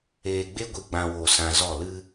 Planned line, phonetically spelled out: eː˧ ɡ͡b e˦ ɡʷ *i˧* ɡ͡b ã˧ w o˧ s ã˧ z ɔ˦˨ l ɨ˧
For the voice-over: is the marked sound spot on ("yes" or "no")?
yes